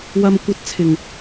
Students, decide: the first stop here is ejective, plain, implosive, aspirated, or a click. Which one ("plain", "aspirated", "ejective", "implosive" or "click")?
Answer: plain